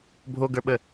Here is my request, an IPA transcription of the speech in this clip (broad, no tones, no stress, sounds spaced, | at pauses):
bʱ o ɡ ə˞ ɓ ə